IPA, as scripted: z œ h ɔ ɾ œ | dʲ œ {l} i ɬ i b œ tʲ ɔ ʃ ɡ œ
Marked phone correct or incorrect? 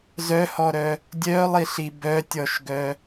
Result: incorrect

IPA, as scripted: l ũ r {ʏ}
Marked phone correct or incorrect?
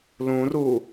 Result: incorrect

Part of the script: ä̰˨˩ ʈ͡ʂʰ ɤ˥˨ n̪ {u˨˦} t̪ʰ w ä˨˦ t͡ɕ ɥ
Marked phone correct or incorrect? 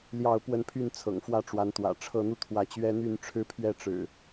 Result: incorrect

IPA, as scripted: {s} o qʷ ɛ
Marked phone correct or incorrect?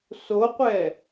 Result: correct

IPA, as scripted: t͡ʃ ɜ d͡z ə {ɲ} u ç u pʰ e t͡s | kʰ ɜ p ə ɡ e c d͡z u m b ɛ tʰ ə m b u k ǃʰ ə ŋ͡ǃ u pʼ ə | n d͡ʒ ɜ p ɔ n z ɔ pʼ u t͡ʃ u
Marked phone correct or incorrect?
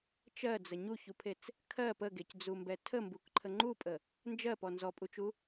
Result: correct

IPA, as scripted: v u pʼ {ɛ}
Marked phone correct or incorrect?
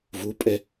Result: correct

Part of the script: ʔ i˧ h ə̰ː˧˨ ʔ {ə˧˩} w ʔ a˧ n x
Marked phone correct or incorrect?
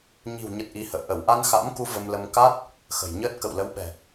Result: correct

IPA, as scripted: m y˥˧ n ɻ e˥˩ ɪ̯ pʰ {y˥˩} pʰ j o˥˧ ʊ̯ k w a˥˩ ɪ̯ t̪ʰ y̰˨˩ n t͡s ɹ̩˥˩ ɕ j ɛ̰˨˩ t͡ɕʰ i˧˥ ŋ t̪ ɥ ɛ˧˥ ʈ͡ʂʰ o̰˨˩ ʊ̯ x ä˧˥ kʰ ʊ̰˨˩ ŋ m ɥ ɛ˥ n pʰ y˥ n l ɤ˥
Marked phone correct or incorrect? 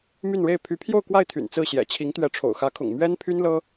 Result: incorrect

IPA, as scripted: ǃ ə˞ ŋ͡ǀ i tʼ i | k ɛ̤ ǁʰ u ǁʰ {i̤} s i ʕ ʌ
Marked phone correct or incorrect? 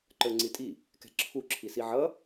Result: incorrect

